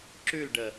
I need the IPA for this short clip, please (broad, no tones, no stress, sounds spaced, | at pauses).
ǁ ʉ l ɖ ə